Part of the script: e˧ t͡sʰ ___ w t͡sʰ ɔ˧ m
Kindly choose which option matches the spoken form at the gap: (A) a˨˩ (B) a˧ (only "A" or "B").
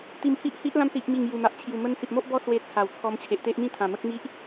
A